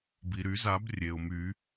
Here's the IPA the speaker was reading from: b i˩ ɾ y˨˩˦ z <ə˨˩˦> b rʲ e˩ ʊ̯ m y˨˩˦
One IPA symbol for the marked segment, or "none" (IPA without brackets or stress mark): a˨˩˦